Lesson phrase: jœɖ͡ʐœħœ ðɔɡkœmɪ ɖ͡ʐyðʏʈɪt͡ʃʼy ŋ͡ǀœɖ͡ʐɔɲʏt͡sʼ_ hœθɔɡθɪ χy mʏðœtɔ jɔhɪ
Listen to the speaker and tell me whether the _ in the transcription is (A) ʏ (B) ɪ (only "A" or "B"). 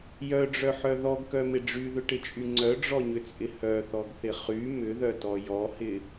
B